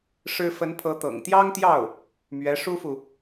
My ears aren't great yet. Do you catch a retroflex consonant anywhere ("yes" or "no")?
yes